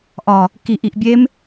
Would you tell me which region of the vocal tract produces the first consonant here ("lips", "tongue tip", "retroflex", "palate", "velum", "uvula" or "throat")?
throat